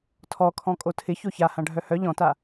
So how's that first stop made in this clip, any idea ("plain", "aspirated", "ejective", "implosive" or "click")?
aspirated